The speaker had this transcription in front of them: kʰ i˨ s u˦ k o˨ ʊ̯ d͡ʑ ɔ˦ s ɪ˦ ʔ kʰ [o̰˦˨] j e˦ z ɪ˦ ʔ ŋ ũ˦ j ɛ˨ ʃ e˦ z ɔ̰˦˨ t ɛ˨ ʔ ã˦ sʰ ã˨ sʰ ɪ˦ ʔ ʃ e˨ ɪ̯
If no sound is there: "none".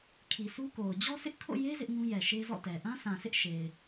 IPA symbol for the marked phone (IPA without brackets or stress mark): o̰˦˨